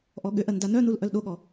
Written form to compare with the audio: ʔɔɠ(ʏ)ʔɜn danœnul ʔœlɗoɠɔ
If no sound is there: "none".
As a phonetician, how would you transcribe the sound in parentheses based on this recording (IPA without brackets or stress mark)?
ʏ